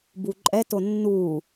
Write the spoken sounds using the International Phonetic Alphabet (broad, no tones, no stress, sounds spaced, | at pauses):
b u ǃʼ ɛ t o nː u